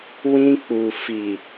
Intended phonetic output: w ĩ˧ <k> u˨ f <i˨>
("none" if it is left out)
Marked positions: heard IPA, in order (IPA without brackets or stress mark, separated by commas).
k͡p, i˨